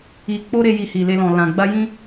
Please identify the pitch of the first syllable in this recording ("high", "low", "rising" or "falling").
low